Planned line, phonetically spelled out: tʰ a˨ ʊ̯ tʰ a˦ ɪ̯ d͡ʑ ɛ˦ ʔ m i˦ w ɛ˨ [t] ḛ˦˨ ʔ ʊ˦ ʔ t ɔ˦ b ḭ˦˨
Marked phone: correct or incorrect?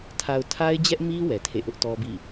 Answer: incorrect